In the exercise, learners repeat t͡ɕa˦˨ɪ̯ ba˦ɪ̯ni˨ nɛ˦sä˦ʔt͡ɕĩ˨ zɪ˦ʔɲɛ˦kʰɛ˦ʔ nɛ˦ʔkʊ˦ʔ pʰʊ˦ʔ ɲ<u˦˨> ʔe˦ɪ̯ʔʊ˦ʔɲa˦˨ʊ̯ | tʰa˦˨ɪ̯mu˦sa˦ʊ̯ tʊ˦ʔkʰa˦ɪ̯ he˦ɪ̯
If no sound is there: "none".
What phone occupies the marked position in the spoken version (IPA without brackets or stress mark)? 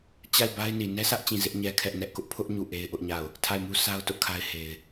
u˦˨